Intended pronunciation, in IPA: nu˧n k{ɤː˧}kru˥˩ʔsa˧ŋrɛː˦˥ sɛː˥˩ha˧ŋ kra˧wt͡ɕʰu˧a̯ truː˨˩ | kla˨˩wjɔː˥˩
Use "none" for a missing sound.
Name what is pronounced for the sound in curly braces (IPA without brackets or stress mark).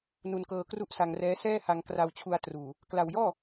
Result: ɤː˧